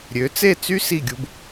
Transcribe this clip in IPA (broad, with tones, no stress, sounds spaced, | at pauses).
ɾʲ ø˩˥ t͡s e˥˩ t͡s y˥ s i˥˩ ɡʲ u˧ b